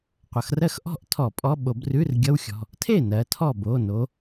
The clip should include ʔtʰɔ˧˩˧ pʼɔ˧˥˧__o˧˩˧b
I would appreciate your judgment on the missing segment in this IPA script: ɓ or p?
ɓ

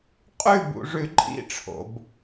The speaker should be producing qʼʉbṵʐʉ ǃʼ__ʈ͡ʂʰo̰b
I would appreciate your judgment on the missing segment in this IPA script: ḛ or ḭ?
ḭ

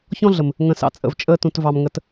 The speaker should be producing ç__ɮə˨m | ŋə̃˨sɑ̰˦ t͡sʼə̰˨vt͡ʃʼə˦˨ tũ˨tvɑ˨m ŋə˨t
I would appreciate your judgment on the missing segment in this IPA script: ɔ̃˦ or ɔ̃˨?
ɔ̃˦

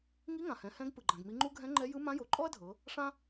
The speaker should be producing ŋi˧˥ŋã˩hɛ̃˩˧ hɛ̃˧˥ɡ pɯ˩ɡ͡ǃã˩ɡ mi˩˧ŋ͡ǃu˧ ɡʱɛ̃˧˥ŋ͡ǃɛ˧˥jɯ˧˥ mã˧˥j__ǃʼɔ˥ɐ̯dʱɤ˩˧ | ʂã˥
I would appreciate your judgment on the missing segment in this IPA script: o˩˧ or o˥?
o˩˧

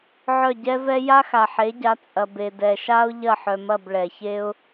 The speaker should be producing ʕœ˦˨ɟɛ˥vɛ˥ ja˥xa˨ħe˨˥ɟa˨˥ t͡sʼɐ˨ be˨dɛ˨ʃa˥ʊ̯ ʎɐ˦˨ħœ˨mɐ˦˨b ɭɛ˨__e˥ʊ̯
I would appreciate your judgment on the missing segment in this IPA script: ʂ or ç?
ç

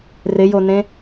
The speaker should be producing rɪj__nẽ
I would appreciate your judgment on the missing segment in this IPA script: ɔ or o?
o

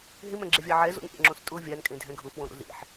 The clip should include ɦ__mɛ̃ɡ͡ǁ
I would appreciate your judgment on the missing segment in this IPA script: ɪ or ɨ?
ɪ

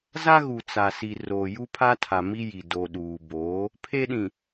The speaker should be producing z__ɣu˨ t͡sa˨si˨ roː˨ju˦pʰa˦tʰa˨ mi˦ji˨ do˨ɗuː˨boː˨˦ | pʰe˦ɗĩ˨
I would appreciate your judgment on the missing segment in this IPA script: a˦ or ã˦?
a˦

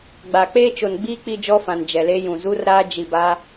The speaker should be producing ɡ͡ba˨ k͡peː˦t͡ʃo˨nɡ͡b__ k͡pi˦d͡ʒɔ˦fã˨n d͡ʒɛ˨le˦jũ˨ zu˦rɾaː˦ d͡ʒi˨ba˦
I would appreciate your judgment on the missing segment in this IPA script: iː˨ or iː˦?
iː˦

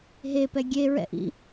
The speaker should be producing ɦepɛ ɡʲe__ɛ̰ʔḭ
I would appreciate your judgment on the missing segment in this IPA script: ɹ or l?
ɹ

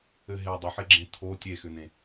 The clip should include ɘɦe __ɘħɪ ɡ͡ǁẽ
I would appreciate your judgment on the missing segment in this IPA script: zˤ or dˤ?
dˤ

